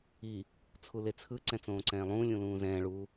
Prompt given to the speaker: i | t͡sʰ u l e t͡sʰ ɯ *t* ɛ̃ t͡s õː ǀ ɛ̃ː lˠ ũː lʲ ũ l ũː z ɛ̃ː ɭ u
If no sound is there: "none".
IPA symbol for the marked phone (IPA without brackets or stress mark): ǀ